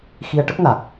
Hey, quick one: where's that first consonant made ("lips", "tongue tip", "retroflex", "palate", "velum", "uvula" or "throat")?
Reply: velum